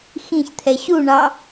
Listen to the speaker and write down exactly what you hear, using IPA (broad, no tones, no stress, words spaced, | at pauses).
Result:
xĩçt̪ʰɛ ɕuɳɑ